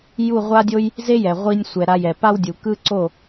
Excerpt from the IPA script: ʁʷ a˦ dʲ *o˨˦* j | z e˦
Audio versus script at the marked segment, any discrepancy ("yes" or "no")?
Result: yes